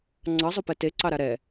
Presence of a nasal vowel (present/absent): absent